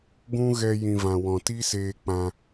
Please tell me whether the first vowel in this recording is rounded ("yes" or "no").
yes